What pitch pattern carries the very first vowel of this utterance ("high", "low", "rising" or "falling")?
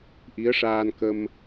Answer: rising